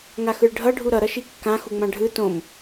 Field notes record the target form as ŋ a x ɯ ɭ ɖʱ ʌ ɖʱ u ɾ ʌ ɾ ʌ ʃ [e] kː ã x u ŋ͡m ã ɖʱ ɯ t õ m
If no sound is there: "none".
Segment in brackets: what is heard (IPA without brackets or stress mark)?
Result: i